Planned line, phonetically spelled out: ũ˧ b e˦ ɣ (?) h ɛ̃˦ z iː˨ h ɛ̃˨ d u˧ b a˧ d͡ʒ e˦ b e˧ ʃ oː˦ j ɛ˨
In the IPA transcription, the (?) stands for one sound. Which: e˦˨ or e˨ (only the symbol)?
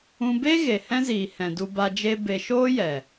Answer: e˨